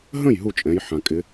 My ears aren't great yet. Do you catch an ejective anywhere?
yes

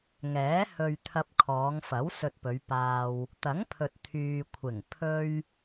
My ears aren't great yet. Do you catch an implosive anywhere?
no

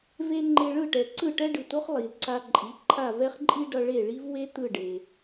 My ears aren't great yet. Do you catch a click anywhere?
yes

